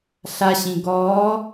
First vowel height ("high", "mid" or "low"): low